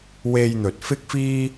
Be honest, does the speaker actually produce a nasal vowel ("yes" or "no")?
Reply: no